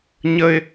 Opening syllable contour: high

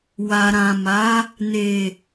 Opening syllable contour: low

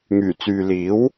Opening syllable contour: low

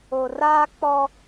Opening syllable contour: low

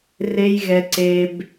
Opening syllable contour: high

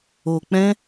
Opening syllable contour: low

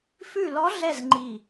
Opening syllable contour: falling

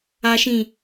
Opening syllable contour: low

